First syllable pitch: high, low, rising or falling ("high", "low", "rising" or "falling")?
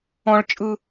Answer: high